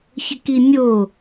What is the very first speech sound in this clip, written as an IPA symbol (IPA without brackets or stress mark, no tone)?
ç